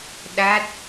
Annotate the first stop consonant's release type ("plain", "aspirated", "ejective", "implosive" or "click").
implosive